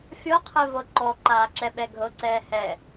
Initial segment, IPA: fʲ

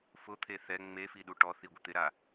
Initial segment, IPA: f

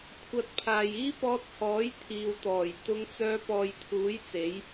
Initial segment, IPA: kʷʰ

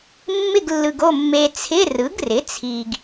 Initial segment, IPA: mː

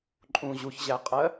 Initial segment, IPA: ǃʼ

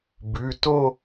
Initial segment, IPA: b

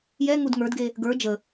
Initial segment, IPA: j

